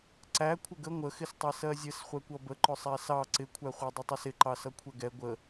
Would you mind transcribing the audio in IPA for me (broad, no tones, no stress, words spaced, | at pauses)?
ǀæ kʷʰɪɡə ŋʷəxɪstˤɛ sɜzʲəs χʷɛkʷʌbəǃʊ sˤæsɑ ǀɪkʷʰæχʷɑ dˤətˤʌsɪǃɑ sʌkʷʰɛɡɛ ɡʷə